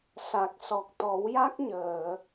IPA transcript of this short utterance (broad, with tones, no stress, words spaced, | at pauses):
sa˨˩k̚ sɔ˨˩k̚t̪ɔ˨˩˦wja˦˥k̚ɲəː˨˩˨